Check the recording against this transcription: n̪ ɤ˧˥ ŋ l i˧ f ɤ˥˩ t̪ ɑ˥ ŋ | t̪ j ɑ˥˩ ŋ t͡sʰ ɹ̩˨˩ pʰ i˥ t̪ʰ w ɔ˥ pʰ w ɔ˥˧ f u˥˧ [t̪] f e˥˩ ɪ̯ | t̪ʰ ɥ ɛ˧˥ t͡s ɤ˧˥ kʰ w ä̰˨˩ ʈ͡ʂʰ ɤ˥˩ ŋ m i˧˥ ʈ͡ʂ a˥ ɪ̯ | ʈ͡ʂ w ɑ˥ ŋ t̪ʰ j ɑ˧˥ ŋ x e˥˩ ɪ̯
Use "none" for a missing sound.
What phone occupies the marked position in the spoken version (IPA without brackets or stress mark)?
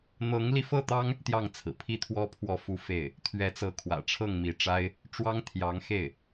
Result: none